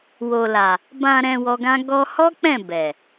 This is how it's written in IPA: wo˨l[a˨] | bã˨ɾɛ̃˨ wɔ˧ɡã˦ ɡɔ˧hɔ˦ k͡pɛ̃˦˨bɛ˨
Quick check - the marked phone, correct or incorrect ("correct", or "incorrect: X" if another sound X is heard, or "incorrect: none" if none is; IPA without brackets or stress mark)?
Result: correct